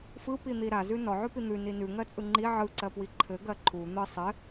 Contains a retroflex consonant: no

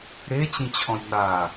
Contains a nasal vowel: yes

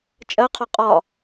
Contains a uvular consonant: yes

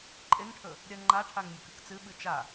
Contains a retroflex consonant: yes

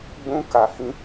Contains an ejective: no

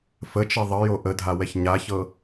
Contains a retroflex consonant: no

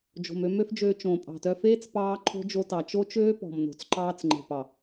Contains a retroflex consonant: no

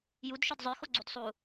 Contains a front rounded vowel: yes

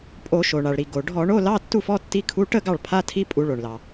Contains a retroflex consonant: yes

